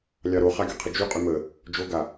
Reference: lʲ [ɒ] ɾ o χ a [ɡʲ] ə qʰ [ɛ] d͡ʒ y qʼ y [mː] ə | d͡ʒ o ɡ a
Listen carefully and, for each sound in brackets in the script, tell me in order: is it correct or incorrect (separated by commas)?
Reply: incorrect, correct, incorrect, incorrect